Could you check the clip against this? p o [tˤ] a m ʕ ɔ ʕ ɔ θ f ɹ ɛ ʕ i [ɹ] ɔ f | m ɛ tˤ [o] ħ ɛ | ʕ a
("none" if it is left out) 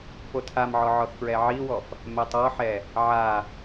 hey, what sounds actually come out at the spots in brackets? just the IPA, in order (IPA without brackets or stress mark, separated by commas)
tʰ, w, ɔ